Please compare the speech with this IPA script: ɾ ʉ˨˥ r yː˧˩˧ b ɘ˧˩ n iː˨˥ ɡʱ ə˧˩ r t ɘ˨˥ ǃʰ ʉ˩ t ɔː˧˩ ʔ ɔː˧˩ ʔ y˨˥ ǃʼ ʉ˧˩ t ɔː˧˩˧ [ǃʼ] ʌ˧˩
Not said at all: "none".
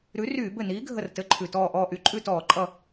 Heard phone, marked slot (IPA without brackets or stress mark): ǃʼ